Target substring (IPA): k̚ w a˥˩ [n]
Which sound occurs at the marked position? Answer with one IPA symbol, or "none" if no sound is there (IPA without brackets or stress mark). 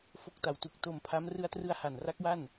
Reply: n